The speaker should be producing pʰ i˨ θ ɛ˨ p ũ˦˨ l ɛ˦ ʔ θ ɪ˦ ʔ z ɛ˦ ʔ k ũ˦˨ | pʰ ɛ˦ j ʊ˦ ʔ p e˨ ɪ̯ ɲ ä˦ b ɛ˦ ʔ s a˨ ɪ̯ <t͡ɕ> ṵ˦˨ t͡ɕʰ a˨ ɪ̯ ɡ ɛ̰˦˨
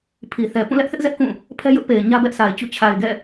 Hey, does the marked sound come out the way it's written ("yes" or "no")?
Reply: yes